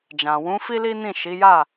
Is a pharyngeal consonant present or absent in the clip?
absent